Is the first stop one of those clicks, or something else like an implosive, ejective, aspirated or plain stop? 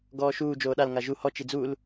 plain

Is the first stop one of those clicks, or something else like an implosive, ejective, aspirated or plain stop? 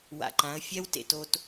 click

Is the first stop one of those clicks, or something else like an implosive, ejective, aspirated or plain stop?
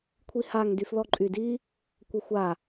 aspirated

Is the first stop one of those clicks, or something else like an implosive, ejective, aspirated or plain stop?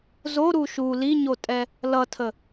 ejective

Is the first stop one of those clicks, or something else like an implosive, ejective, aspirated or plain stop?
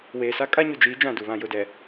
ejective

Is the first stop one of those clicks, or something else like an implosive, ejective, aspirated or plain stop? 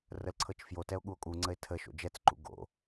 click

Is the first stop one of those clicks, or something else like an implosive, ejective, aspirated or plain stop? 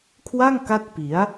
aspirated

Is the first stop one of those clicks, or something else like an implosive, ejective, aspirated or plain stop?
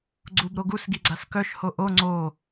click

